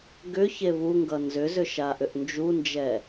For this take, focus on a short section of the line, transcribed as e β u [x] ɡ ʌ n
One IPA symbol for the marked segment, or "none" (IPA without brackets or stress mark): ŋ